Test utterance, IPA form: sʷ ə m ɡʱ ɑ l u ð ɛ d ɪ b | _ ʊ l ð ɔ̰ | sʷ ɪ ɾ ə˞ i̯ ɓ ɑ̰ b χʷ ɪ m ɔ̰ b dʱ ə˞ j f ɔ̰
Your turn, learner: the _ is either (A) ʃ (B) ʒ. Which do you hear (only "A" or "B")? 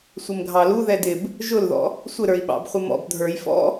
B